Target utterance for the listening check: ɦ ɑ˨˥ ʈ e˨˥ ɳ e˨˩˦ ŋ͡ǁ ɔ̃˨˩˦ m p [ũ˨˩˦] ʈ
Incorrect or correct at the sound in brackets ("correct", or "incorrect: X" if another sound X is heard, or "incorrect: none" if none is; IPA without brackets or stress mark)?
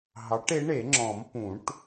correct